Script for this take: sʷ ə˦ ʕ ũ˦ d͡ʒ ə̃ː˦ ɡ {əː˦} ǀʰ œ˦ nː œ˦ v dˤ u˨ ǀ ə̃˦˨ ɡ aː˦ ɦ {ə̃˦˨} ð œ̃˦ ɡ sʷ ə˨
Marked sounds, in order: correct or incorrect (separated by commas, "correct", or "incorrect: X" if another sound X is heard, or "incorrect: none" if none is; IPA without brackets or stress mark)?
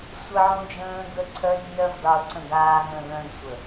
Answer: incorrect: ə˦, correct